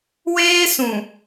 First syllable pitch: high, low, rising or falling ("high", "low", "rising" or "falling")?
high